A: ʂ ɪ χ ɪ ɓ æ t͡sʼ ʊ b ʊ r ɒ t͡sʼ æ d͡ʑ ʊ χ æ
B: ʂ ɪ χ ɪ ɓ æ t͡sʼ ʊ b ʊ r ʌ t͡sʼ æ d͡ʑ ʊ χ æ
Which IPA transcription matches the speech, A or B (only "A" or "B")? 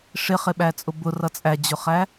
B